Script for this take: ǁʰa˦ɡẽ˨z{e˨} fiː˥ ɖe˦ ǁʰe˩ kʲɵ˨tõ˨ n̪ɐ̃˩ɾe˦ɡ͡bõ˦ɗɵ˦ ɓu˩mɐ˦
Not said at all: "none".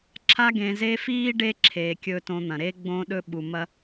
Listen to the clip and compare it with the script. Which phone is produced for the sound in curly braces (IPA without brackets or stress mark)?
e˦